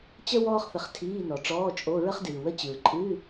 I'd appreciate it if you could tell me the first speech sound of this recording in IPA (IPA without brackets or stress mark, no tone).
t͡ɕ